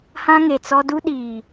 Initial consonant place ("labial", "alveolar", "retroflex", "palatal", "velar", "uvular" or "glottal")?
glottal